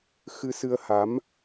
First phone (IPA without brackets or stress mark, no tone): x